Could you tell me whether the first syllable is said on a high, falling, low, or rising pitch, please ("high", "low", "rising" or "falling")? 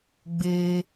high